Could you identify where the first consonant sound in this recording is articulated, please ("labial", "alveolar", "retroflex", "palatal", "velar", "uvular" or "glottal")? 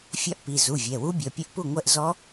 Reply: labial